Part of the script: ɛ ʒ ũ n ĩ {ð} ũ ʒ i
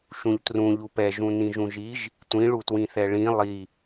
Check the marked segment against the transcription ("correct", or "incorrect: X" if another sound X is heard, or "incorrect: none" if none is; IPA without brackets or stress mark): incorrect: ʒ